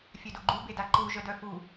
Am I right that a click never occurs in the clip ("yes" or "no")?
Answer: no